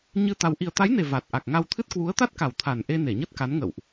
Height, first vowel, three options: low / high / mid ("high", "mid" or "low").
high